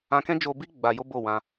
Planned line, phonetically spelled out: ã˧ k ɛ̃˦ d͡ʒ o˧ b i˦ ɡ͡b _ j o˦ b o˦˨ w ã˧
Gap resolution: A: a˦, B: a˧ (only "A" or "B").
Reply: B